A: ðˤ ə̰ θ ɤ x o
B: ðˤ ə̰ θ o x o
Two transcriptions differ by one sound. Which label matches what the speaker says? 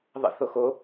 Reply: B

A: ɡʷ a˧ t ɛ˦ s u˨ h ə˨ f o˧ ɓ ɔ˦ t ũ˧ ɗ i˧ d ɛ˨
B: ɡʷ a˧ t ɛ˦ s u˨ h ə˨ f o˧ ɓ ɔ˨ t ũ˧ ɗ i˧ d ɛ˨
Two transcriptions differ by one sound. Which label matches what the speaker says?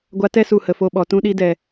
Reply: B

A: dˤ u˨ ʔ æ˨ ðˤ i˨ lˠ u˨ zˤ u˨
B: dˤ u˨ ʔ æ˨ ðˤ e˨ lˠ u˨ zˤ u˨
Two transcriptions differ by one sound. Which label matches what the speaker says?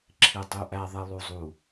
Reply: A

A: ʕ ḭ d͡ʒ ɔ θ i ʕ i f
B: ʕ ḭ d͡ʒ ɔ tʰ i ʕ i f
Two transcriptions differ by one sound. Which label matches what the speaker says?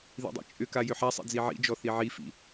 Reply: A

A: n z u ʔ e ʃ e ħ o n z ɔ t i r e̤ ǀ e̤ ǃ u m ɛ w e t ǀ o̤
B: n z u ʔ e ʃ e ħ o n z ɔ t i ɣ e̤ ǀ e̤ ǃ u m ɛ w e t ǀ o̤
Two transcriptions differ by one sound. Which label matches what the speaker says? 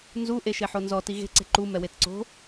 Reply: B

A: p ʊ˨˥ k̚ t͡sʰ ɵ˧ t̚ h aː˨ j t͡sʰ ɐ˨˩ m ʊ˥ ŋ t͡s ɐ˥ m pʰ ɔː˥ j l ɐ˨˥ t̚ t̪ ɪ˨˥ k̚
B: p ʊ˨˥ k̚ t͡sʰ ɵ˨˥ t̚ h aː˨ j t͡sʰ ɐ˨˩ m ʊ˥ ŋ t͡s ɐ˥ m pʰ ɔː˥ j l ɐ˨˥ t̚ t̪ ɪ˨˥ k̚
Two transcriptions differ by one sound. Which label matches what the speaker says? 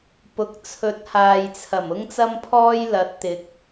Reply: B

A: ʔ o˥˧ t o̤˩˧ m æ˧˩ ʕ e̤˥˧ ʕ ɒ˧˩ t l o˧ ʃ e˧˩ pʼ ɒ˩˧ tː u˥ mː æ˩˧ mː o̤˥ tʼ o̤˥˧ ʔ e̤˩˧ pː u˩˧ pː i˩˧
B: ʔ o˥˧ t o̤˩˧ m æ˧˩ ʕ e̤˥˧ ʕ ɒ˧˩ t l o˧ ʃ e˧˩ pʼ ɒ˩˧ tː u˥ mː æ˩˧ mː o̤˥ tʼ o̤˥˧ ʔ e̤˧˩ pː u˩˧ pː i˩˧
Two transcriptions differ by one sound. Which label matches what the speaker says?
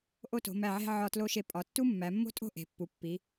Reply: A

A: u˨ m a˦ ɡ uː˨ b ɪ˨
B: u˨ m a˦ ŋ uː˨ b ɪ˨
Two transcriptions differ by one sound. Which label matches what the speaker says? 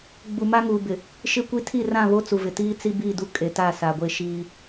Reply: B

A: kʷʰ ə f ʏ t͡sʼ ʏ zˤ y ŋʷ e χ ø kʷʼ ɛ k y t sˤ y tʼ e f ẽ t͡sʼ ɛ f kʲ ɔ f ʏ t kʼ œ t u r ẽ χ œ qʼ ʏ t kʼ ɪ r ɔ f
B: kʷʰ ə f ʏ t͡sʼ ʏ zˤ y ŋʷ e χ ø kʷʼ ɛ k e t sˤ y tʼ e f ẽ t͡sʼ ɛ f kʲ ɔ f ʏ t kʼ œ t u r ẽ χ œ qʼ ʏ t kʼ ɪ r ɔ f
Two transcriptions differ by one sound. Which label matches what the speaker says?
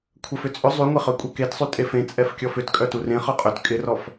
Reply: B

